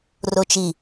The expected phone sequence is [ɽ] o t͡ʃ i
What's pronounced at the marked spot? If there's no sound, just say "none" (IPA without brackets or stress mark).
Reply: r